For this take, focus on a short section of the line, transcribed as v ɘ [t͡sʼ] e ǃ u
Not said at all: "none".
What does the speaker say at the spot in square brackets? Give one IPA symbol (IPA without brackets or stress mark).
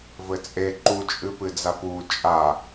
t͡sʼ